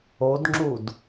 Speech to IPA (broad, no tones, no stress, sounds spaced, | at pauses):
o d ŋ͡ǁ u d